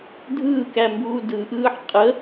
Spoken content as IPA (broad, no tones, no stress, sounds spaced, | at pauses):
dʱ ɯː k æ m b uː d ɯ ʔ ɯː ħ qʼ ə